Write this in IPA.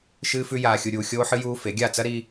ʃ ɨː˦ f ʉ˦ j aː˧ xʲ u˧ ɾʲ uː˧ xʲ oː˦ ħ ɨ˦ j uː˦ f e˨˦ ɡʲ a˦˨ t͡s ɐ˦ ɾ i˧

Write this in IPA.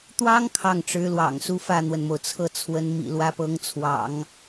t̪ w ɑ˥ ŋ kʰ ɑ˥˩ ŋ ʈ͡ʂ ɻ̩˧˥ l w ɑ̰˨˩ ŋ s u˥˧ f ä˥˩ n̪ w ə˩ n m o˩ ʊ̯ t͡sʰ ɤ˥˩ t͡sʰ w ə˧˥ n m ḭ˨˩ l w ä˧˥ p ɤ˧˥ ŋ t͡sʰ w ɑ̰˨˩˦ ŋ

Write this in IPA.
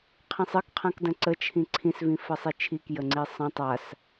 qʰ ĩ sˤ ɘ k qʰ ã k d ə̃ ǀ ə t͡ʃʰ ĩ ǀʰ ĩ s v ĩ f ə sˤ i t͡ʃʰ i k j ə ŋ͡ǀ i sˤ ə̃ tˤ a s

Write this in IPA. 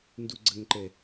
n d u ɡ͡ǀ ə ŋ ǃ ɛ

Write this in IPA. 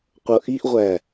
qʷ ʌ ʔ i ʔ ʁʷ æ

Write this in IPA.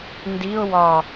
n d i ʊ̯ w ɒ

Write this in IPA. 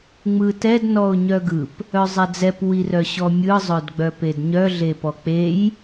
ŋ͡m ɯ t ɛ d n ɔ ʊ̯ ɲ œ ɡ ɯ p | œ zˤ ɛ d͡z ɛ p w i r œ ɕ ɔ mʲ ɯ zˤ œ d ɡ͡b œ p e d ɲ œ ɮ e p ɔ k͡p e j

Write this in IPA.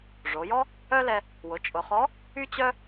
ʐ o˩˧ j ɔ˥ | œ˥ l ɛ˧ | w ʊ˩˧ t͡ʃʼ ʊ˩˧ χ ɔ˧˥ | y˥ t͡ɕ œ˥

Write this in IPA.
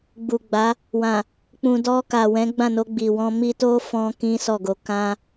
ɡ͡b u˨ ɡ͡b a˨˦ | w ã˨ | k͡p ũ˨ d ɔ˧ k a˨ w ɛ̃˨˦ ɡ͡b ã˦˨ n o˧ ɡ͡b i˨ w ɔ̃˧ m i˧ t o˦ f ɔ̃˦ k ĩ˦ s ɔ˦˨ ɡ o˧ k ã˦

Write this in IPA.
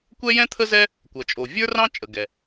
kʷ ɛ˥ j ɛ̃˥ t̪ʰ ə˥ z ɛ˥ | kʷ ʌ˩ t͡ʃʼ o˩ vʲ ə˞˥ r ɑ̃˥ t͡ʃʼ ə˩ ɡ ɛ˩

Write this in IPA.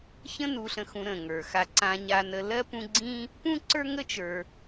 ç ə̃˦ n u˨ ɬ ə̃˨ x ũ˨ ɾ ə̃˩ ŋ ə˞˩ x a˨ ǀ ã˨ ɲ a˨ n ə˨ l ɜ˥ p ũ˦ ɡ͡ǀ ĩ˥ | p ũ˥ ǀ ə˞˥ ŋ ə˥ t͡ʃ ə˞˨

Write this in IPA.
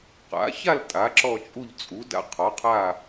q a̰˩˥ ç a˦˨ l tʼ a˩˥ ǁ ɔ˦˨ t͡ʃʼ u˦˨ ʎ t͡sʼ u˩˥ d a̰˦˨ qʰ ɔ˩˥ qʰ a˦˨

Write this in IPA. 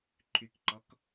ǃʰ y k ǃ ɔ k

